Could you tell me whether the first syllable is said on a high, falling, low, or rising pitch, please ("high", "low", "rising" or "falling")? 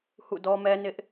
falling